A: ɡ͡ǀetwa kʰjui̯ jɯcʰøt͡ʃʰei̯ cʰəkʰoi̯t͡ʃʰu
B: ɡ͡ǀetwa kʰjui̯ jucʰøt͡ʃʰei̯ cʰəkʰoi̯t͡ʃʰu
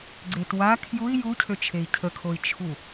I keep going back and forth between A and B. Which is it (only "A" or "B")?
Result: B